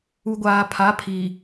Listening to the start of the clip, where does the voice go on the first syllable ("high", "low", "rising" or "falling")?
low